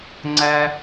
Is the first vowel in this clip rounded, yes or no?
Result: no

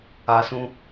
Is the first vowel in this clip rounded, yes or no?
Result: no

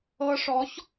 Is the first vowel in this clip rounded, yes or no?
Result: no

